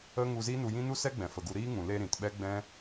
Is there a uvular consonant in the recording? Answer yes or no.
no